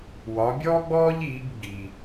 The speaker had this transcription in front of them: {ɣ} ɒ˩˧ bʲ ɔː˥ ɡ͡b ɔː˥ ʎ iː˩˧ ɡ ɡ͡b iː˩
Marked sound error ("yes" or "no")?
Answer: yes